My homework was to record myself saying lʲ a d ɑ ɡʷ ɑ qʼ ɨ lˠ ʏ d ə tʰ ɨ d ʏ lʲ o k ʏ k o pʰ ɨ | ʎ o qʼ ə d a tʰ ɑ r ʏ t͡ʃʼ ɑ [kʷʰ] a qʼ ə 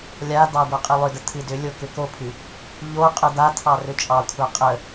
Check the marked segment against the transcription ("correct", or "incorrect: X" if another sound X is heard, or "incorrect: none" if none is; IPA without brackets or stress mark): correct